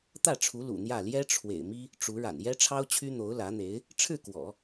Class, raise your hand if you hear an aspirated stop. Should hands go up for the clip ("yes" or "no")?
yes